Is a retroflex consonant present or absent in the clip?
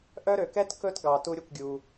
absent